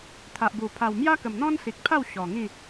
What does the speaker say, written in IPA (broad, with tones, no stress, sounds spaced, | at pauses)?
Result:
t̪ʰ a˨ ʔ b u˨˩ pʰ a˨˩ w m j a˦ k ə˨˩ m n̪ ɔ̃˦ n s i˨ k̚ pʰ a˥˧ w ɕ ɔ˨˩ ŋ ĩ˥˧